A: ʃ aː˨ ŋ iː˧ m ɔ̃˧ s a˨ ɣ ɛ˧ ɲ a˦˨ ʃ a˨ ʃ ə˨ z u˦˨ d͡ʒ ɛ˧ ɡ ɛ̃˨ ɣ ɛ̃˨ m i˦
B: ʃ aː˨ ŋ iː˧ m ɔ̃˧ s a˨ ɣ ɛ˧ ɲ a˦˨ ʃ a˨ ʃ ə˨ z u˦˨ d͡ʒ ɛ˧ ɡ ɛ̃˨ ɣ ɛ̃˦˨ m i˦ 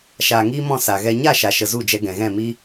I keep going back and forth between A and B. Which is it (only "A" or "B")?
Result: B